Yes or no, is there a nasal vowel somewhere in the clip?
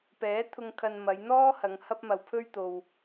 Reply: no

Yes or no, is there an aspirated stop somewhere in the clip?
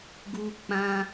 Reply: no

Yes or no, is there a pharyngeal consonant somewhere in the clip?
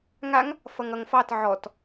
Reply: yes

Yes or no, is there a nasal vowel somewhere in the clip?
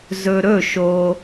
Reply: no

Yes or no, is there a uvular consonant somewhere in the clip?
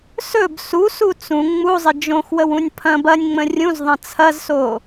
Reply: no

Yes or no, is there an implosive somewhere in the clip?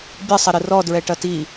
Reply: no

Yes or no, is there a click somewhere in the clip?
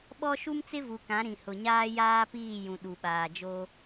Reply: no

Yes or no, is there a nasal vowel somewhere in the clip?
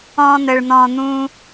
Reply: yes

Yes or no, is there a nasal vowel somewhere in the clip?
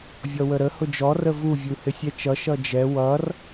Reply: no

